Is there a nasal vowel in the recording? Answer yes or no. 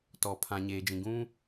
yes